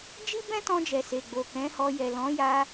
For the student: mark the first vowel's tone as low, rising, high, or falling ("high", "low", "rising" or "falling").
high